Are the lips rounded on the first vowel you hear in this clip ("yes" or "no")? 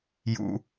yes